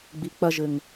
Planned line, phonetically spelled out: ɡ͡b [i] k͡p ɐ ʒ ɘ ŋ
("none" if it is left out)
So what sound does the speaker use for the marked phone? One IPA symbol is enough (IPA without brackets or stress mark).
i